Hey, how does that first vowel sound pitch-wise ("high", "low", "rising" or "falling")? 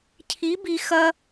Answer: rising